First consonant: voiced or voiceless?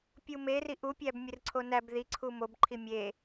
voiceless